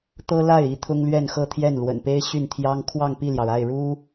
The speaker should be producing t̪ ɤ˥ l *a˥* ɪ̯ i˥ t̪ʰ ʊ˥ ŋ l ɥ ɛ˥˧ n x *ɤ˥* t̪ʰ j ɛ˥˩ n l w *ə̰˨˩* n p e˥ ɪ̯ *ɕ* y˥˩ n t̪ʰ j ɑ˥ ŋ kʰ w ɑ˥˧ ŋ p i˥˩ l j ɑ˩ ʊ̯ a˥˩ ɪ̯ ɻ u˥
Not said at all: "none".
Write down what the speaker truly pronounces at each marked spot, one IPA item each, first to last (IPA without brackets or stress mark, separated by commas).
a˥˩, ɤ˥˧, ə̰˨˩, ɕ